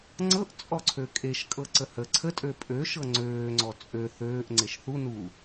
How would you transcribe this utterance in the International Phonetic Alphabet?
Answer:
ŋ͡ǀ ɤ ʔ t͡sʼ ɔ ǀʰ ø kʼ e ʃ kʼ ɤ ǀ ə h ə ǀʰ ə tʼ ø pʼ ø ʃ ɤ ŋ͡ǀ øː ŋ͡ǀ ɔ t͡sʼ ø θ øː ʔ ŋ͡ǀ e ʃ θ u n u

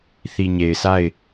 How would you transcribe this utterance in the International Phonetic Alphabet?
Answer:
θ i˨ ɲ e˨ ɪ̯ s a˦˨ ɪ̯

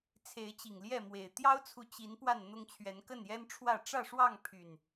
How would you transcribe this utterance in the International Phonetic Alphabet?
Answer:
t͡sʰ e˨˦ ɪ̯ t͡ɕ i˨˩ ŋ l j ɛ˥˨ m w e˨˩ ɪ̯ t̪ j ɑ˦ ʊ̯ t͡sʰ u˨ t͡ɕ i˨˦ n p w a˥˨ n n̪ ʊ˦ ŋ t͡ɕʰ ɥ ɛ˨˦ n k ə˥˨ n j ɛ˦ n ʈ͡ʂʰ w ä˥˨ ʈ͡ʂ ä˥˨ ʂ w ɑ˥˨ ŋ pʰ y˨˩ n

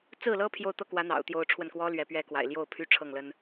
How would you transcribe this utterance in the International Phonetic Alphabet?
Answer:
t͡s ɹ̩˥˩ l ɤ˥ pʰ j o˥˧ ʊ̯ t̪ ɤ˥˩ k w ä˧˥ n̪ ɑ̰˨˩ ʊ̯ t̪ j o˧˥ ʊ̯ ʈ͡ʂʰ w ə˥˩ n k w ɔ˥ l ɥ ɛ˧˥ p ɥ ɛ˥ k w a̰˨˩ ɪ̯ l j o˥˩ ʊ̯ pʰ y˥ ʈ͡ʂʰ ɤ˥˩ ŋ l ə˥ n

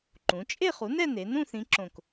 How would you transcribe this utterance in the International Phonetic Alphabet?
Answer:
ǃ ũ˩˧ t͡ʃʼ e˥˧ χ u˩˥ n ɛ˥˧ n e˩˧ n ũ˥˧ θ ĩ˧˥ ǁ õ˧˩ k

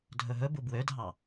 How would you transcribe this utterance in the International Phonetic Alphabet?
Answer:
dʱ ɵ ɦ ɵ b u b w ø dʱ ɑ

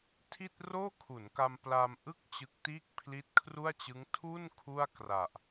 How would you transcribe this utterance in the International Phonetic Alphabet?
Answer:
tʰ i˥˩ t̚ r oː˥˩ kʰ u˩˦ n k a˧ m p l a˧ m ʔ ɯ˥˩ k̚ t͡ɕ ɯ˦˥ k̚ t iː˥˩ k̚ pʰ l i˦˥ t̚ kʰ r u˥˩ a̯ t͡ɕ ɯ˦˥ ŋ tʰ u˥˩ n kʰ u˥˩ a̯ k r a˨˩ ʔ

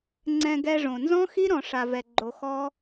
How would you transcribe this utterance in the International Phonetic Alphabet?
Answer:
ŋ͡ǀ ɛ̃˧ ɡ ɛ˧ ʐ õ˨ n z ɔ̃˦ x i˦ ɾ ɔ̃˧ ʂ a˧ v ɛ˧ ɡ͡ǃ o˧ x ɔ˦

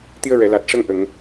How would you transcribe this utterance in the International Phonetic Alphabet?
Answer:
t̪ i˧ ə̯ ɹ ɛ˨˩˨ l a˨˩ t̚ ʂ ə˧ ŋ ʔ ə˨˩˨ ŋ

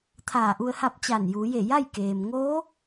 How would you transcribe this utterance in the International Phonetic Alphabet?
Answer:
t̪ʰ aː˧˩ ʔ u˧ ə̯ h a˥˨ p̚ t͡ɕ a˧˩ n j uː˩˧ j e˧˩ j a˥˨ j k eː˩ m ŋ o˧˥

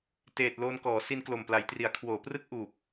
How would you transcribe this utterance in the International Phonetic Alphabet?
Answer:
t eː˨˩ t̚ l oː˧ n k ɔː˩˦ s i˧ n k l o˨˩ m p l a˩˦ j t r i˩˦ a̯ kʰ w oː˩˦ p r ɯ˥˩ k̚ ʔ uː˨˩ p̚

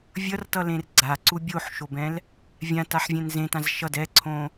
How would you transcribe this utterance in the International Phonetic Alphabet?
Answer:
vʲ ʌ r t ʌ l ẽ r ɡ͡ǀ a ǀ u bʲ o ħ ʃ o b ɛ̃ l | vʲ ã t a ħ vʲ ɛ̃ n z ẽ t ã z ʃ ʌ d ɛ ǀʰ õ

